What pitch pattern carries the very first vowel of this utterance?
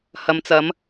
low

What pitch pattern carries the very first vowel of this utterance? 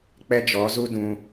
high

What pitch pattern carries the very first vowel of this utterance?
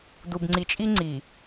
low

